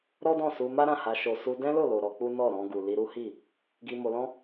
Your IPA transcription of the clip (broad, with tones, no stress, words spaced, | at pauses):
ɾɔ˦dɔ̃˦˨su˧ ma˦ɾã˦˨ha˧ ʃo˨su˧ dɛ̃˦lo˦˨lo˨ ɾɔ˧k͡pu˦nɔ˦˨ ɾɔ̃˧ɡu˨li˧ɾu˦ hi˦˨ | ɡi˧mo˧lɔ̃˦